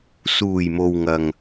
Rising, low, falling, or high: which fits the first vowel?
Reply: low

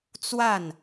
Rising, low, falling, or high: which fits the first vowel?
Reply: falling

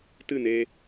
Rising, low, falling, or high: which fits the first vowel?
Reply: falling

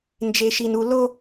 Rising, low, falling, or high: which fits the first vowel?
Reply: low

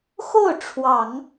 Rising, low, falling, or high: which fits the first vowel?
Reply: falling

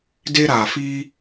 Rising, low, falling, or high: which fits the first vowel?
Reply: high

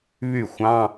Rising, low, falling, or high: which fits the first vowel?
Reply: falling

